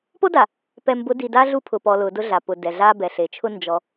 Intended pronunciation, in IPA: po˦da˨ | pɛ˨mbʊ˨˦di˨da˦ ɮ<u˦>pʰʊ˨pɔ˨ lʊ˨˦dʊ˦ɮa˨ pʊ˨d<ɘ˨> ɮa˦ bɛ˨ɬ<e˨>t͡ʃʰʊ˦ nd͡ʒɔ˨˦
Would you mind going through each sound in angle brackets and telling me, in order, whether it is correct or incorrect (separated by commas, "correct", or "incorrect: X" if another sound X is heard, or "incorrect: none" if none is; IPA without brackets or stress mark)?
correct, incorrect: ɛ˨, correct